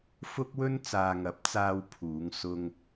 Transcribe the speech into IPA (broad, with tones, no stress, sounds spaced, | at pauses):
f ʊ˥ k̚ w ɵ˥ n t͡s aː˨ ŋ ɐ˨˥ p̚ t͡s aː˧ w pʰ uː˨˧ ŋ s ʊ˧ ŋ